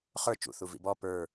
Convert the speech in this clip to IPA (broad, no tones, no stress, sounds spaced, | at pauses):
χ ə˞ t͡ʃ ṵ θ u v ḭ b ɔ p ə˞